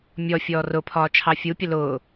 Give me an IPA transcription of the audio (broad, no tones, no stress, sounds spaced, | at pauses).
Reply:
mʲ ɔ fʲ ɔː r ʊ pʰ ɒː t͡ʃʰ ɑ fʲ u pʲ ə l ʊː